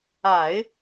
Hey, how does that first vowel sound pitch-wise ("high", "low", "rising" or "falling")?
low